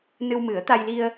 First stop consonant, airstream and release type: plain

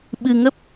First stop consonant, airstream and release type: implosive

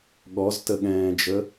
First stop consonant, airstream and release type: implosive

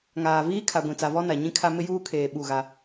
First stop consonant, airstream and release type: aspirated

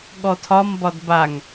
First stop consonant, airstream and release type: implosive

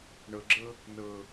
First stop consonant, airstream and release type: click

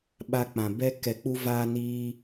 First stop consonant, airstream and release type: implosive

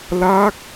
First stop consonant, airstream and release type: plain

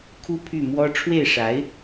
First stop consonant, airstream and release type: aspirated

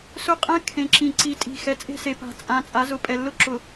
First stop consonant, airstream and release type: ejective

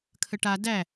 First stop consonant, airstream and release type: aspirated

